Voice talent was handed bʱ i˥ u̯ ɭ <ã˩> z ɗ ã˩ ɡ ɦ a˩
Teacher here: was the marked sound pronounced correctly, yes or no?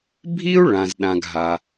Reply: yes